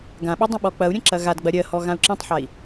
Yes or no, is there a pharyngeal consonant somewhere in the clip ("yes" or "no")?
yes